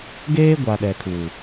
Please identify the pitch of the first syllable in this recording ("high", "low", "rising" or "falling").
high